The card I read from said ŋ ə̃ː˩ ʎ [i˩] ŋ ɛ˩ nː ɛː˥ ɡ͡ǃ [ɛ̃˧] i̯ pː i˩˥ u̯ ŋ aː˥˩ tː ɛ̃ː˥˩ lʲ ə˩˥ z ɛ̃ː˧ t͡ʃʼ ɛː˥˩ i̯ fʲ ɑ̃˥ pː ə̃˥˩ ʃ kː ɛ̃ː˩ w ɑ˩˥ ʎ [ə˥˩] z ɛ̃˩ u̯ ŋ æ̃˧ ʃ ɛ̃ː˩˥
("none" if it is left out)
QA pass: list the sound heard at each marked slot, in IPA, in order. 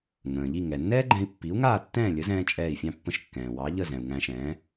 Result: i˥˩, ɛ̃˧, ə˥˩

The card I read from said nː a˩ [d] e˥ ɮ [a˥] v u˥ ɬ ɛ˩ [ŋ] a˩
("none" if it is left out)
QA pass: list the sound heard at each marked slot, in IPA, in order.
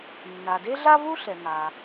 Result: d, a˥, ŋ

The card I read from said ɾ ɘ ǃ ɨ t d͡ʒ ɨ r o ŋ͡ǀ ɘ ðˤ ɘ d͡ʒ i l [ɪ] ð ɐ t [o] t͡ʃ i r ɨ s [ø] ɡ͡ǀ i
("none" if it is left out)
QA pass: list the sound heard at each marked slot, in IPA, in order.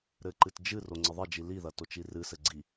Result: i, o, ɘ

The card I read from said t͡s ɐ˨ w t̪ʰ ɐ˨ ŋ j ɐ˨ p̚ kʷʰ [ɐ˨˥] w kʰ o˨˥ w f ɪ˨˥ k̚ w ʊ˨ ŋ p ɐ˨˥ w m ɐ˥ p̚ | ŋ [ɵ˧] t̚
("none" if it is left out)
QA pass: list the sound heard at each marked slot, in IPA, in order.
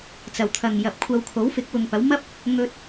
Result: ɐ˧, ɵ˧

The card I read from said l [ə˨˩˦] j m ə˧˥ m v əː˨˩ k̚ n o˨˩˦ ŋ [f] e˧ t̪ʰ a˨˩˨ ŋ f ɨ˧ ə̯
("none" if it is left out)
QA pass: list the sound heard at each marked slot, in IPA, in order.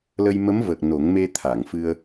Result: ə˧, m

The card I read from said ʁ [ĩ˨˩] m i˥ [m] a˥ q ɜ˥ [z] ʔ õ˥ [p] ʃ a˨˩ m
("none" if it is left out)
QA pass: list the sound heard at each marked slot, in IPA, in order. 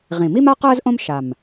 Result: ĩ˨˩, m, z, m

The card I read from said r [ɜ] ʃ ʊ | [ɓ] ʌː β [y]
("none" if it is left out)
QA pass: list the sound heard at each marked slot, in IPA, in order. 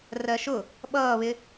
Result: ɜ, ɓ, ɪ

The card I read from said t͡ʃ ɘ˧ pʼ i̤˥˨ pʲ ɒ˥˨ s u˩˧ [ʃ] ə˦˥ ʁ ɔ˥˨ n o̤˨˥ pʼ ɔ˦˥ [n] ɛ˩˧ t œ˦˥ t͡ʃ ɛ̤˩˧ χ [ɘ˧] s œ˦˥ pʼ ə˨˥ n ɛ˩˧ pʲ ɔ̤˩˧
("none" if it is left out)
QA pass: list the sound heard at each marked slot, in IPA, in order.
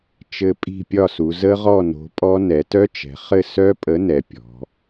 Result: z, n, ɘ˥˨

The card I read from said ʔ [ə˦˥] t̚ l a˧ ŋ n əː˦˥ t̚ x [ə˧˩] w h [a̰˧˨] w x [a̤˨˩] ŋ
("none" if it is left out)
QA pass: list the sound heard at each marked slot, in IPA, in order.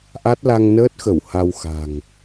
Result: a˦˥, ə˧˩, a˧, a̤˨˩

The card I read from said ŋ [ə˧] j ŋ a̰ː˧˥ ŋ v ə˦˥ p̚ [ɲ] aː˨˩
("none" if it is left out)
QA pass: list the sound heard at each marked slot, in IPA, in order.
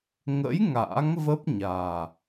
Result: ə̰˧˥, ɲ

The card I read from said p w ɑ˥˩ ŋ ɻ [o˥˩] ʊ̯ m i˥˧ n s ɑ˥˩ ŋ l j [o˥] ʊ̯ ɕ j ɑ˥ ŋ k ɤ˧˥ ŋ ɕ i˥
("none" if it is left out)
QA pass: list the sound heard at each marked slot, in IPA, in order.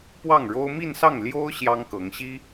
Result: o˥, o˥

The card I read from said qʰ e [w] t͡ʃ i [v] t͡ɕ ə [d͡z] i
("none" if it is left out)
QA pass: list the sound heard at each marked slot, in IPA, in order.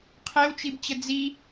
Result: w, b, d͡z

